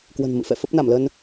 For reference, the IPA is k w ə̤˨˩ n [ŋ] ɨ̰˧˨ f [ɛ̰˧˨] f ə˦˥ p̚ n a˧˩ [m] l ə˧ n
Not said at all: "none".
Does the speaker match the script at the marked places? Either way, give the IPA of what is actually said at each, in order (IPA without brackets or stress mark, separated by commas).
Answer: m, ɛ̰˧˨, m